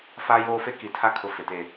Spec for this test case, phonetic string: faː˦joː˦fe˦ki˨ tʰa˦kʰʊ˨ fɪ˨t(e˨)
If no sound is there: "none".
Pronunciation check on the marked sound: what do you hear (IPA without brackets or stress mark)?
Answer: e˨